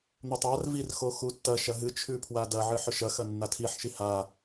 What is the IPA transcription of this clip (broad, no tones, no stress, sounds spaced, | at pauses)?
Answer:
n̪ ɵ tˤ a r v i r x o x u tː ɐ ʃ ɐ ɦ ɨ t͡ʃʰ ʉ pʰ w a d ɐ ʕ ɨ ħ ɵ ʃ ɐ x ɐ nː a tʰ i ħ ʃ i h a